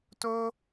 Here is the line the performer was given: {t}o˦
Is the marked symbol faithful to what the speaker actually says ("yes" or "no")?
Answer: yes